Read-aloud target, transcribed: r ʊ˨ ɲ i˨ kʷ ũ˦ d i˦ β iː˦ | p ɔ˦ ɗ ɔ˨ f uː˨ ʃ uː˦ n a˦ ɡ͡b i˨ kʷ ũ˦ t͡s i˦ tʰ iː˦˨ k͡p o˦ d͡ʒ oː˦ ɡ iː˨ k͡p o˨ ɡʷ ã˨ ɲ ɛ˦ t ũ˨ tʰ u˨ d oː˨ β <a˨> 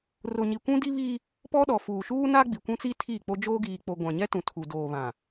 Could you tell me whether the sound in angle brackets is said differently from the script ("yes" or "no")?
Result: yes